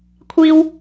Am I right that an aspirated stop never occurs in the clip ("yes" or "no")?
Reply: no